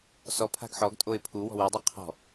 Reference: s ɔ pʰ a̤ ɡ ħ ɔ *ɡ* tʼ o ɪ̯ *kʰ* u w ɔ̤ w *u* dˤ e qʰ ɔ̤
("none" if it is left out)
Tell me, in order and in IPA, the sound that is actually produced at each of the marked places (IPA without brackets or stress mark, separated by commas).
ɡ, pʰ, u